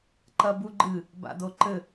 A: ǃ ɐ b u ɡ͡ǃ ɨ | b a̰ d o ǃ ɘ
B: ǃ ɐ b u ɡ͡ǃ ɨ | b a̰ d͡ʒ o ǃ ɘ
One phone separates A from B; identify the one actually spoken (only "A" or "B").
A